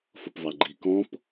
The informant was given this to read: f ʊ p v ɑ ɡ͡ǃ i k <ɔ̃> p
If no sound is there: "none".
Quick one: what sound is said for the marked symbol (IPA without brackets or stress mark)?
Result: ɔ̃